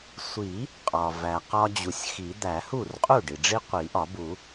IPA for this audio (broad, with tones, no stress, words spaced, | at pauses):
sʷi˨˩˦ | qʼɒ˩væ˩qɒ˦d͡ʑu˩sʲ xi˨˩˦d̪æ˨˩˦ hu˥˩rqʼu˥˩ɖi˩ɖ͡ʐi˦ qʷi˨˩˦ʔɒ˨˩˦bu˨˩˦